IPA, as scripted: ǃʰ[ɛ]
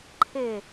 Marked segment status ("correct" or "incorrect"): incorrect